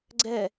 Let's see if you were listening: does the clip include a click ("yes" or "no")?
yes